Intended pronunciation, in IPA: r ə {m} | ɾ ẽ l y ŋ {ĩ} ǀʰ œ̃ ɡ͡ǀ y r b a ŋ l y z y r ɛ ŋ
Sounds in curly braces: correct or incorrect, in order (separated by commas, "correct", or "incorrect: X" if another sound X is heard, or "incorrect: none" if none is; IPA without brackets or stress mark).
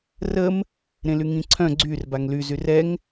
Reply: correct, correct